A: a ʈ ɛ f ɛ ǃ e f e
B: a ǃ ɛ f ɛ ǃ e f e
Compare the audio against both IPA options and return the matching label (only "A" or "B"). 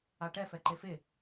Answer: A